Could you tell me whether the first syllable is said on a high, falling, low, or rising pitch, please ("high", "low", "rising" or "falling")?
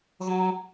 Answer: high